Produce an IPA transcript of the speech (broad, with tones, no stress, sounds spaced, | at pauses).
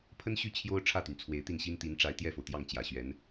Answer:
pʰ ə˥ n ɕ y˥˩ t͡ɕʰ j o˥ ʊ̯ ʈ͡ʂʰ ä˥˩ t̪ y˩ n t͡sʰ w e˧˥ ɪ̯ t̪ i˥˩ n ɕ i˥ n t̪ i˧˥ n ʈ͡ʂ a˧˥ ɪ̯ t̪ j ɛ˥˩ f o˩ ʊ̯ t̪ j ɑ˥˩ ŋ t͡ɕ j ä˨˩ ɕ ɥ ɛ˧˥ n